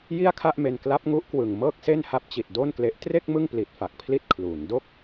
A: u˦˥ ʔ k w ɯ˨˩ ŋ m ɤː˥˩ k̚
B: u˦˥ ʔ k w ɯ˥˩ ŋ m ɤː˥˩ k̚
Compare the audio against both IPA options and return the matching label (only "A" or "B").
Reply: A